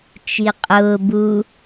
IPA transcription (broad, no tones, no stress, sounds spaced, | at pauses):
t͡ʃ i qʼ ʊː b u